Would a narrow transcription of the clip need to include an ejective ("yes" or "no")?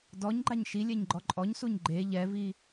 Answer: yes